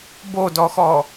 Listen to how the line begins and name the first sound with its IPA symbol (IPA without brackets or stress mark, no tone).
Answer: b